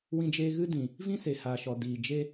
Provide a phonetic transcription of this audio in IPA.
wĩ˧d͡ʒeː˧ɣɨ˦dĩ˨ | vĩ˦se˨haː˨ʃɔ˨ diː˨d͡ʒe˦

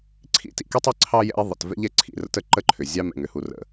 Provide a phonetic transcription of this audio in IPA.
ǀʰḭ˧tḭ˨ ke˦tˤi˧ ǀʰɑ˦jɛ̰˧i̯ ðˤə̰˨t vɛ̰˧ʎɛ˨ ǀʰḭ˦˨rə̰˦tə˨ ǃə˦ǃʰʏ˨ zʲɑ˧mɛ̰˨ŋ ʏ˨hu˨rə̰˨

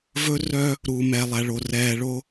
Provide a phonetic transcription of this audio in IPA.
vɵ˦ rœ˦ | ɾu˨mɛ˨lˠæ˨ɭo˨ rɛː˨ɭo˦

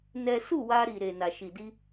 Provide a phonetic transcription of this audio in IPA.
nɛ˦ su˦˨wa˧ɾi˨ɾe˨ na˨ʃi˨di˧

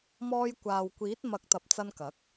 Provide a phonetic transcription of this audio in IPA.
mɔː˧j kʷaː˨wkʷiː˨˥t̚ mɐ˨˥k̚t̪ɐ˨p̚ t͡sɐ˧nkɐ˨˥k̚

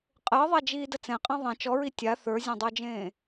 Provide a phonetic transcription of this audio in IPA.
qʼəːðˤad͡ʒiːdə t͡sɛ̃qʼã ðˤẽ t͡ʃɔɹi tʲa θə˞zʲãdˤə˞d͡ʒẽː

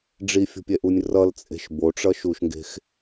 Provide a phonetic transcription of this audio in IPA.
ɖ͡ʐifʲo̤pʲɛʔunʲ rʌlt͡sʼe̤ʃ boʈ͡ʂʌʃuʃŋɡe̤x

